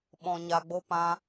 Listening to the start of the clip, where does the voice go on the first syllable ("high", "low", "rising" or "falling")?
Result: low